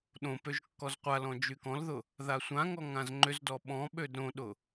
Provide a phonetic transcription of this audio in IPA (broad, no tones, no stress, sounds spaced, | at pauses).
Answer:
ɗ õ p ø ʒ kː ɔ z qʷ a l ɔ̃ d͡ʒ y k ɔ̃ l ð ʊ | ð a sʷ ã ŋ ɔ ŋ ã z ŋ͡ǃ ʏ z d ɔ ɓ ɔ̃ ɓ ø d ɾ õ ɗ ʊ